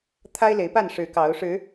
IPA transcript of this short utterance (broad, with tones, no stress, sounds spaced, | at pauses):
t̪ʰ a˦ ɪ̯ l e˨˦ ɪ̯ p a˥˨ n ʂ ɻ̩˨˦ k ɑ˨˦ ʊ̯ ʂ ɻ̩˨˦